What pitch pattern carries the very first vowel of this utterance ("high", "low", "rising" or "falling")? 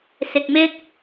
low